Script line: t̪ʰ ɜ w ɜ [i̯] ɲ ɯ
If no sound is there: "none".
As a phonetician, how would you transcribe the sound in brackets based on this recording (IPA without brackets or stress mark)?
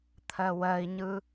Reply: i̯